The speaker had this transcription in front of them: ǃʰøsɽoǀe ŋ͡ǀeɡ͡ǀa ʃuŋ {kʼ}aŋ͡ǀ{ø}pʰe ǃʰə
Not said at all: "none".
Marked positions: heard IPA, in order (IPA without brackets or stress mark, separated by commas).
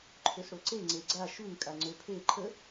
kʼ, ø